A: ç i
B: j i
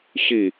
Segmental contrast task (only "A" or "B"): A